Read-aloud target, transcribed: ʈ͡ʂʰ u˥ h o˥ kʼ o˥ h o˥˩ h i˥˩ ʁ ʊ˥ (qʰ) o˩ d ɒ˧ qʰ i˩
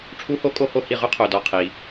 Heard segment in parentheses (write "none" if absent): qʰ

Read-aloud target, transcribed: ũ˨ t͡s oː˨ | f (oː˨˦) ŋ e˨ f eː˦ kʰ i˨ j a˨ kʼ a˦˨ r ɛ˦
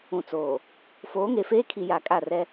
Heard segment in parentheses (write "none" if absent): oː˨˦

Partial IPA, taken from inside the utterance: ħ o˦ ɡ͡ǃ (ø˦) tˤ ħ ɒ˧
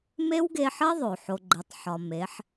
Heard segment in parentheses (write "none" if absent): e˦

